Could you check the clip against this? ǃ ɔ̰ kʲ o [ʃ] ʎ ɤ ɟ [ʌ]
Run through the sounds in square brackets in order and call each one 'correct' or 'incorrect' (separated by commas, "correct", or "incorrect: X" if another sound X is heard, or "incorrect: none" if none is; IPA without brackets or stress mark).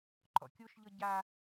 correct, incorrect: a